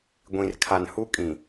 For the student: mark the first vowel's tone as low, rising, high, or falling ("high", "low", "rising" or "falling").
low